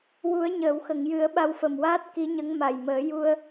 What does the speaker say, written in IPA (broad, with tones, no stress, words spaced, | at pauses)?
wu˨˩˦ə̯ɲəː˨˩˨wxə˨˩˨ŋjɨ˨˩˦ə̯ ɓa˧wfə˨˩mwaː˦˥t̚ ki˧˥ɲə˧˥ŋ ma˨˩jməː˨˩˦ ju˧ə̯